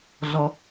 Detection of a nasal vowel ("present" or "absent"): absent